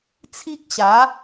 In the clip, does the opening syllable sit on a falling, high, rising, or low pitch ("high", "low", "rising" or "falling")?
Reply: high